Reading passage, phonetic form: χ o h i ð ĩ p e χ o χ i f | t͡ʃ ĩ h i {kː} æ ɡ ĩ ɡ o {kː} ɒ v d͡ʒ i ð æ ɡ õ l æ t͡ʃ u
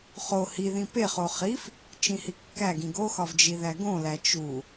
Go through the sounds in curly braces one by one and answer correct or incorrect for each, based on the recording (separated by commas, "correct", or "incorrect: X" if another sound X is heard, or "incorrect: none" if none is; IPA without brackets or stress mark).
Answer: correct, incorrect: x